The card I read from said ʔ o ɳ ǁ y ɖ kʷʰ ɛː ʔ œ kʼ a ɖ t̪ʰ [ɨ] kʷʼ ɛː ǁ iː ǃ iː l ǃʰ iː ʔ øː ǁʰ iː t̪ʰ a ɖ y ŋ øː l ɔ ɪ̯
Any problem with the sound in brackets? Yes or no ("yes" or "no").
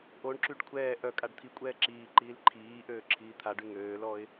yes